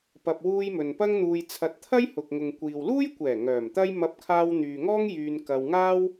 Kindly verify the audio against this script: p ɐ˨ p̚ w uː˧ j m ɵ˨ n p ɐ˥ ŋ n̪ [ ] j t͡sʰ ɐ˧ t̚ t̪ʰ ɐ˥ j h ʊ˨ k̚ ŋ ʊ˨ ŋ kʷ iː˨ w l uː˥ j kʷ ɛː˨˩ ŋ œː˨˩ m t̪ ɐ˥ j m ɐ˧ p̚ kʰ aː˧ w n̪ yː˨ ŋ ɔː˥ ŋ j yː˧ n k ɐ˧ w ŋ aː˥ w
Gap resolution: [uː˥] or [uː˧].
uː˧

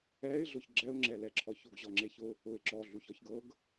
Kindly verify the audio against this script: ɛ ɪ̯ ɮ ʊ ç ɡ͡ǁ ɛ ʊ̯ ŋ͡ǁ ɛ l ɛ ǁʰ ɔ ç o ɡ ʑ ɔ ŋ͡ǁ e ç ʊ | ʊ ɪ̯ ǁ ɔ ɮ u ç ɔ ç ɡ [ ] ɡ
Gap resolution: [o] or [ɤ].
ɤ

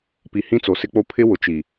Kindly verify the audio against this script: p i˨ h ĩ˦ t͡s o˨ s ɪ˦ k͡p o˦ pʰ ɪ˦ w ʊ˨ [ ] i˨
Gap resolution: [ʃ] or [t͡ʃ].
t͡ʃ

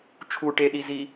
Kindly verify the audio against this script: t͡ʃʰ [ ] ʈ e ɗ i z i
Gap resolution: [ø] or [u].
u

